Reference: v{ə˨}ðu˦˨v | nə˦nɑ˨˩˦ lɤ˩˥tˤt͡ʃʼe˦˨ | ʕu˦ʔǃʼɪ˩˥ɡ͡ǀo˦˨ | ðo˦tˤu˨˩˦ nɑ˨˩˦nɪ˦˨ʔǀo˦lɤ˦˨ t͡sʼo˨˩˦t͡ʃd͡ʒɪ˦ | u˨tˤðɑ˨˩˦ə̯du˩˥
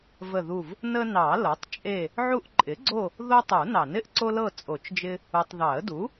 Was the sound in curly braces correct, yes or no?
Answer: no